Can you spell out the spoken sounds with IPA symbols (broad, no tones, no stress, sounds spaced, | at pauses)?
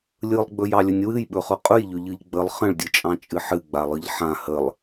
lʲ ɯ lˠ ɡ͡b ɵ j ɑ lʲ ɵ nʲ w ɨ j ɓ ɵ χ ɵ qʼ ɵ j ʎ ɵ ʎ ɯ ʎ ɡ͡b ə lˠ χ ə̃ ɭ dʲ ɯ t͡ʃʼ ɑ̃ t͡ʃʼ ɨ ħ ɨ ɡ͡b a lˠ ɯ ʎ ħ ã h ə lˠ